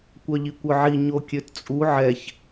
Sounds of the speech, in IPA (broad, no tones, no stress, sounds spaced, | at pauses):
kʷ œ ʎ i kʷ œ ʕ i ɲ o kʲ ø t t͡sʼ u ʕ ɛ ç